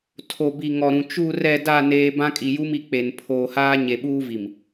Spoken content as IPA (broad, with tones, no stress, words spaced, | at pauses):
tʰo˨bi˨ŋɔ˨ɾũ˨ t͡ʃu˨rɛ˨da˨ neː˦ bã˦kʼi˨ju˦mi˨ k͡pe˨n pʰoː˨haː˦ ɲe˨ɓuː˦vi˨m